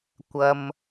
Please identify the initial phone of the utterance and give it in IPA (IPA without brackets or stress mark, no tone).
kʷ